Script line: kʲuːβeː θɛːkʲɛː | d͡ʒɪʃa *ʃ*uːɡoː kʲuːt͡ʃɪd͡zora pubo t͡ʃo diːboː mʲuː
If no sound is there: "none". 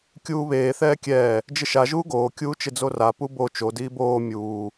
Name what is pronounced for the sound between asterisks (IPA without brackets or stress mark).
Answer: ʒ